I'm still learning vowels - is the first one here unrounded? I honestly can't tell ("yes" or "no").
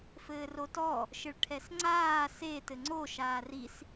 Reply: yes